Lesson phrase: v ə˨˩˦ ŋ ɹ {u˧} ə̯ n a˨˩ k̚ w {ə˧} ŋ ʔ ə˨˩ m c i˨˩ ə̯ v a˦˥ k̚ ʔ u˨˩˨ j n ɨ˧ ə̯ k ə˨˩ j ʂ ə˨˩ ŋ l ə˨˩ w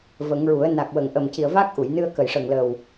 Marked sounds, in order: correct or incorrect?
incorrect, incorrect

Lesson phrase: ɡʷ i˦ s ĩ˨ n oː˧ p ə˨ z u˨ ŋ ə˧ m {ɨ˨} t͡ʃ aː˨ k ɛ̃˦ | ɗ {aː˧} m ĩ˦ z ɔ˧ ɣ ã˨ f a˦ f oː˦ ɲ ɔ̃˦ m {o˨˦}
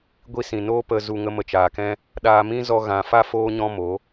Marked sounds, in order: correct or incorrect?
incorrect, correct, correct

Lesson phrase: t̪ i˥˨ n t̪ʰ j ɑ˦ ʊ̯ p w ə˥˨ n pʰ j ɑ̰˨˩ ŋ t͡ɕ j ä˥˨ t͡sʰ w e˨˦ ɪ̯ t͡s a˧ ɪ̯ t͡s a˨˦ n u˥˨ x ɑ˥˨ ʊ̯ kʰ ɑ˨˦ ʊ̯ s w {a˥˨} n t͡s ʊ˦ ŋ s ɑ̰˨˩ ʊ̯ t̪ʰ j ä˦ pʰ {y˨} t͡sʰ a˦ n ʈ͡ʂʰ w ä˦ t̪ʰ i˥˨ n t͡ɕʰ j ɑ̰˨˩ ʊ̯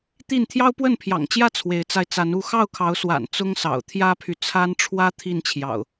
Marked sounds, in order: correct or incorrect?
incorrect, correct

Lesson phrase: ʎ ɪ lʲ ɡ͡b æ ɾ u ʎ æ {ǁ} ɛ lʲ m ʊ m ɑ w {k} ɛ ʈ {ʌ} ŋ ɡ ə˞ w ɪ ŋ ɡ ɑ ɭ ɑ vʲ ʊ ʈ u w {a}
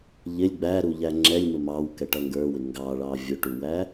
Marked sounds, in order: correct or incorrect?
incorrect, correct, correct, incorrect

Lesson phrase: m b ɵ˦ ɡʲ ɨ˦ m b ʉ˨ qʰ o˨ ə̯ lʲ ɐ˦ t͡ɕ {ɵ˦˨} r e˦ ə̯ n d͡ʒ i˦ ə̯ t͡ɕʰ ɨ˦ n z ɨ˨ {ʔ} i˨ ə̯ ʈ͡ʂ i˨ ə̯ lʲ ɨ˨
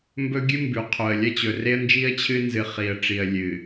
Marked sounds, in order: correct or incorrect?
incorrect, incorrect

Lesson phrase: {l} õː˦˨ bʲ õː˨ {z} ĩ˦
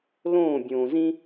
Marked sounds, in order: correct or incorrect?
correct, correct

